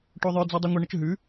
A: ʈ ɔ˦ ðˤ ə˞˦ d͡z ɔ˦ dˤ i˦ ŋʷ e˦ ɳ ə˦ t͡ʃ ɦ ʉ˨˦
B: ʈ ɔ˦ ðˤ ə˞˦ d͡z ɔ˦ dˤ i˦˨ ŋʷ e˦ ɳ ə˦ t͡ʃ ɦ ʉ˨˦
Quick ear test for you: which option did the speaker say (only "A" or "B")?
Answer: A